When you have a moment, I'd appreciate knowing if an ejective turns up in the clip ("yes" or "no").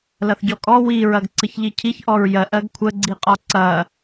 yes